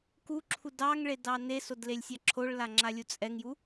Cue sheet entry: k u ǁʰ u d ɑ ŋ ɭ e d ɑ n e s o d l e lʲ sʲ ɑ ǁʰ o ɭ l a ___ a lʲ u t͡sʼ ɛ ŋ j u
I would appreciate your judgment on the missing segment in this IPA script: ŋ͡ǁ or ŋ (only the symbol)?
ŋ͡ǁ